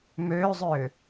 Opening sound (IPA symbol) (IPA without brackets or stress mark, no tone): m